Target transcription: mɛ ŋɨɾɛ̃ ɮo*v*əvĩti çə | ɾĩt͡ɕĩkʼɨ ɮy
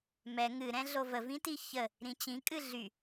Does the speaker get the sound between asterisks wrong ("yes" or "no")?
no